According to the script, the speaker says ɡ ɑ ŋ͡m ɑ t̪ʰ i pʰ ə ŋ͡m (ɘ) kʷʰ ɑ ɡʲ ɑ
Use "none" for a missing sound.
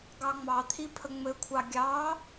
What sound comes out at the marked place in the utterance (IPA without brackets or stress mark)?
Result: ɘ